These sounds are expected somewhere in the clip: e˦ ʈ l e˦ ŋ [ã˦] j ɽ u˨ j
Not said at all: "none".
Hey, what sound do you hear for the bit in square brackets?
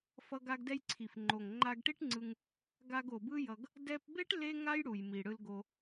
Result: a˦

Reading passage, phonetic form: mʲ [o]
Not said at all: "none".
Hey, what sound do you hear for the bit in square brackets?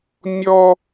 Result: ɔ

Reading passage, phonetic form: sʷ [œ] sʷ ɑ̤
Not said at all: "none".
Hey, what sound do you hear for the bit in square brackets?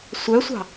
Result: œ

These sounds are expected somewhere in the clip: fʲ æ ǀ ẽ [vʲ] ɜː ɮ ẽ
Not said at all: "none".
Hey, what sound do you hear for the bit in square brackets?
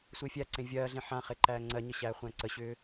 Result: vʲ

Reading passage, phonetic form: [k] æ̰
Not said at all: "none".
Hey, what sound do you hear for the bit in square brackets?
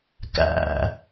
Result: k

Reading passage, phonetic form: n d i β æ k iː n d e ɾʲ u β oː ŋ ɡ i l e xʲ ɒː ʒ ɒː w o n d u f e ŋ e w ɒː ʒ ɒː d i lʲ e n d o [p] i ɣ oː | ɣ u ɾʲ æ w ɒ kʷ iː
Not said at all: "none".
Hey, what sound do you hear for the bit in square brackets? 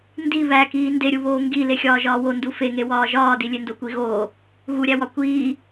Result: kʷ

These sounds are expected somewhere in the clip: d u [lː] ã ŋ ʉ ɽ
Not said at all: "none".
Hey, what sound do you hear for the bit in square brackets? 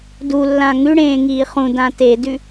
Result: lː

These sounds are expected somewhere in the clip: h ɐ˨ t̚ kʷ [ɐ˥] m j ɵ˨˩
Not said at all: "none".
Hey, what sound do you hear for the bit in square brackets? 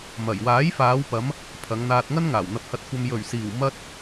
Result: ɐ˨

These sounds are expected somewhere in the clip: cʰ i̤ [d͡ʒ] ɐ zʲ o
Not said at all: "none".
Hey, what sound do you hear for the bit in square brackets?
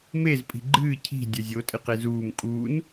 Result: dʲ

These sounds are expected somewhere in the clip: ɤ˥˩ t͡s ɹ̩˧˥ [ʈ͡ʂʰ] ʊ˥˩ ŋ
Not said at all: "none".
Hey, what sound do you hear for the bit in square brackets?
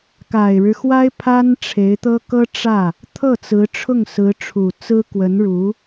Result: ʈ͡ʂʰ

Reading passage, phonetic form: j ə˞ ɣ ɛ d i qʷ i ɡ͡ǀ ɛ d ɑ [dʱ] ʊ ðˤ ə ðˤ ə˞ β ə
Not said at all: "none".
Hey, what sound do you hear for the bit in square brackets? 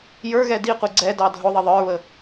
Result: dʱ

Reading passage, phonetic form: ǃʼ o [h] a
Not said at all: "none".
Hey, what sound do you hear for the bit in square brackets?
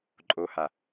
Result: h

